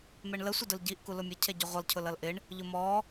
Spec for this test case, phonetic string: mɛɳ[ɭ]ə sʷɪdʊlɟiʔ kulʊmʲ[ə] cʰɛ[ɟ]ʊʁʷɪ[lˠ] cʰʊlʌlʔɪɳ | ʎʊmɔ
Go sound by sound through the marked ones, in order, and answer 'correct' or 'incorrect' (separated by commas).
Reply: incorrect, incorrect, correct, correct